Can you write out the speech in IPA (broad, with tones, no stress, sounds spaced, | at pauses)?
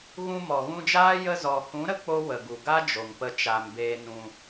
ɣ ũ˧ m ɔ˨ ɣ ũ˧ d͡ʒ aː˦ j ə˧ z ɔ˨ h ũ˨˦ ɾ ə˦ k͡p o˦ w ə˨ ɡ u˨ ɡ a˦ d͡ʒ o˨ ŋ p ə˧ t͡ʃ a˨ m b eː˧ n ũ˧